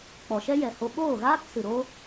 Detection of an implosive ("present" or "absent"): present